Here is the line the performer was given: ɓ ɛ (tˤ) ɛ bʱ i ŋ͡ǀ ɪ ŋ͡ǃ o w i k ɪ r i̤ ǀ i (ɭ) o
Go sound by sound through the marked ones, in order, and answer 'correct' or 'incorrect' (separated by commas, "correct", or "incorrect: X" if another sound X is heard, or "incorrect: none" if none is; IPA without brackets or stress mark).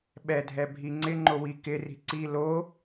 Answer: incorrect: dʱ, incorrect: l